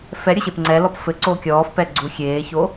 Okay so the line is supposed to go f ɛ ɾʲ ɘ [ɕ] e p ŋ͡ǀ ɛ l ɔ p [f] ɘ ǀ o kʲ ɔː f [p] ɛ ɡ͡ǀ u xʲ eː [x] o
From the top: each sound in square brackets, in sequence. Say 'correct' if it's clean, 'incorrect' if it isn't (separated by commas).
correct, correct, correct, incorrect